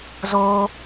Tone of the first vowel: high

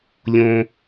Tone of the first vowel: high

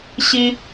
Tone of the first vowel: high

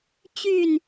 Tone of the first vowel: falling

